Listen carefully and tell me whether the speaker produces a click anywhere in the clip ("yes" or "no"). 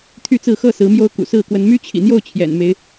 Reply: no